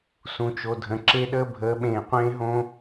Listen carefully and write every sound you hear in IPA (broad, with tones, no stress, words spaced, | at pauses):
sũ˨t͡ʃo˨dʱə̃˨ ǁe˦ɗəː˦ bʱəː˨˦ɓẽː˨qʷẽː˦ɦõ˦